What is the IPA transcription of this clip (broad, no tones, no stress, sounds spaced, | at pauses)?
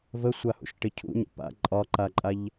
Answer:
v ə sʷ a h ṵ ʃ ʈ ɪ cʰ ṵ ɲ ə̰ p a̰ ǃʼ ɒ ǃ a ǃʼ a ʎ